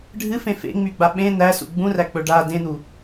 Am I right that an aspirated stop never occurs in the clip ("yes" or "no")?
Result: yes